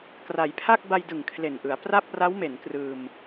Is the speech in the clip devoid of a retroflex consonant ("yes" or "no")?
yes